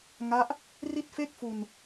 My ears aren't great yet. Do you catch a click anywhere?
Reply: no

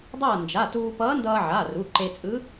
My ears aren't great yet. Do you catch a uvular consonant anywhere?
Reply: no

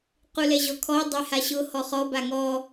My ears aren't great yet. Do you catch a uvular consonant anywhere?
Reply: yes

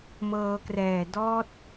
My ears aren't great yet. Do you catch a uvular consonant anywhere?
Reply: no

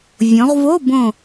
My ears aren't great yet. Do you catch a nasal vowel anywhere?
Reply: yes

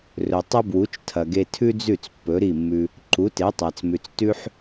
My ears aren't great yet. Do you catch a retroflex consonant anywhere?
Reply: no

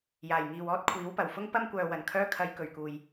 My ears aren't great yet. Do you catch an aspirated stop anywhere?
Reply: yes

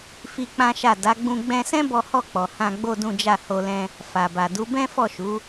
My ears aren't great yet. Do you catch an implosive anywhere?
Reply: no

